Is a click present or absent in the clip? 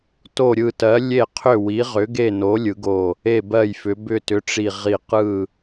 absent